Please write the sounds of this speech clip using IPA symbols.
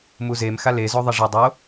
m u z e m x a l e z o ðˤ ɐ ʐ ɐ dˤ o

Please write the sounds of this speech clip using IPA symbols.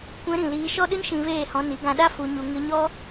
kʷ ɛ̃˧ ɾ ĩ˨ l iː˧ ʃ ɔ˦ ɗ ɨ˦ n ʃ ĩ˧ v eː˦˨ h ɔ̃˧ n i˨˦ ɡ ã˧ ɗ a˦ f u˧ ɲ u˧ ŋ ɨ˧ ɲ ɔ˦

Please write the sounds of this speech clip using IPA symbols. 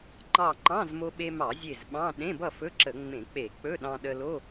ŋ͡ǃ ɑ˧˩ ŋ͡ǃ ɑ̃˧˥˧ z m o˧ ɓ e˧ m ɑ˧˩˧ zʲ e˧˩ z ɓ ɑ̃˧˥˧ ɗ ẽ˧˥˧ b ʌ˥˨ f ɵ˧˥˧ ǁ ə˧˩˧ ŋ͡m ẽ˧˩˧ k͡p e˧˩˧ k͡p ɵ˧˥˧ ɗ ɑ̃˧ ɗ ə˧ l o˧˥˧

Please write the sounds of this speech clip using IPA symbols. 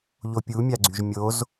ʎ o pʲ u mʲ a ɡ͡ǀ y ʒ mʲ o z

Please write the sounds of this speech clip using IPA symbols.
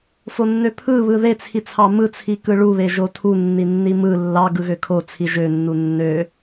f o nː ø pʰ ɯ β ɯ ð e t͡sʰ i t͡sʰ ɑ m ɯ t͡sʰ i k ɯ ɭ u β e ʒ o tʰ u nː i nː i m ɯ lː ɑ ɡ ɯ ɣ ø kʰ o t͡sʰ i ʒ ø nː u nː ø

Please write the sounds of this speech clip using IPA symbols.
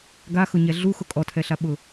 ɡ a x ʊ ɲ ɛ ɮ u x ʊ kʼ ɔ tʰ ɛ ɬ a ɓ ʊ

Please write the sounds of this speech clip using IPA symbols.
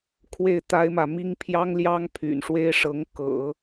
kʰ w e˥˩ ɪ̯ t̪ a˥ ɪ̯ m ä˨ m i˥ ŋ pʰ j ɑ˥ ŋ l j ɑ˥ ŋ pʰ y̰˨˩ n ʂ w e˥ ɪ̯ ʂ ɤ˧˥ ŋ k ɤ̰˨˩˦

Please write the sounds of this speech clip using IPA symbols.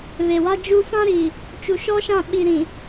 β e˨ w a˦ d͡ʒ u˦ f ã˦ ɾ i˨ | t͡ʃ u˨ ʃ ɔ˦ ʃ ã˦˨ ɓ i˨ ɾ ĩ˨

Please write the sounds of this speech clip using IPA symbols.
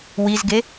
w i z ɡ e

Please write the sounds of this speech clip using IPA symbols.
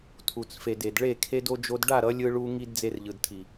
tʰ u˨ t͡s f e˨ d e˨ d ɭ e˦˨ kʰ e˦ d o˦ d͡ʒ o˧ d ɖ a˦˨ ɾ ʌ˨˦ lʲ ɯ˧ ɭ u˧ ŋ i˧ d d͡z e˧ r ʎ ɯ˨ d tʰ i˨

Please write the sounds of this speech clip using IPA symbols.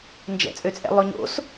n d͡ʒ ɛ̰ t͡sʼ ø t͡sʼ ɛ̰ lˠ ø ɲ o̰ s

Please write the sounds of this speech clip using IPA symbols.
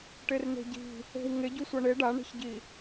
ʈ e r n e̤ ɟ i̤ | e̤ w ŋ e ɟ u sʷ ʌ ɳ e ɖ a ɳ e̤ ç ɟ i

